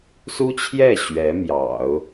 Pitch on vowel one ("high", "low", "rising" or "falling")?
high